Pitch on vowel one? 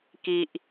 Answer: low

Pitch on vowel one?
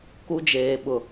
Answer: high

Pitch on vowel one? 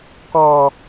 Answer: low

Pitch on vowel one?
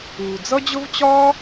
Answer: low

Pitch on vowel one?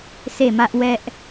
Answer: falling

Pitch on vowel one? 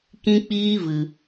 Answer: high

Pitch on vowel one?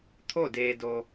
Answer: falling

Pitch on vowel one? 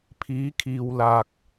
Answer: rising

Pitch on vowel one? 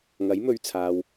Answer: rising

